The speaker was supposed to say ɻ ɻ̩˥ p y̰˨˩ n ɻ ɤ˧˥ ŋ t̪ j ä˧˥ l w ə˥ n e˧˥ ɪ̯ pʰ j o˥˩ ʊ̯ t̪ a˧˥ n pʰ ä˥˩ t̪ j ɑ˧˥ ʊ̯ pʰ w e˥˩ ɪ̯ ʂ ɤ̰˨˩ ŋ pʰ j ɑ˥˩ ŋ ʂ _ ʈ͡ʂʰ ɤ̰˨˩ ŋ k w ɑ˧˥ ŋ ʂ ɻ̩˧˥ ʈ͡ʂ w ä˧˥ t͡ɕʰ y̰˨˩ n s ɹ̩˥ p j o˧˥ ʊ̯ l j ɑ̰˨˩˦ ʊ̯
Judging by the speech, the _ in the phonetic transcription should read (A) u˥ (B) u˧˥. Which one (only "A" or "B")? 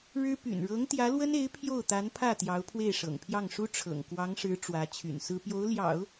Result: A